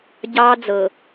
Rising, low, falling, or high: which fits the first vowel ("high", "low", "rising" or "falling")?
high